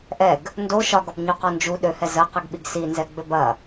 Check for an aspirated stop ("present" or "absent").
absent